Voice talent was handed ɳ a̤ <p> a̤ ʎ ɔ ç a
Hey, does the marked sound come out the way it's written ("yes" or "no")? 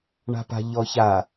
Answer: yes